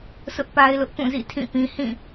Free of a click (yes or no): yes